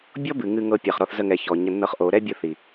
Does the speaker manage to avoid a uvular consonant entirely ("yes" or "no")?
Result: no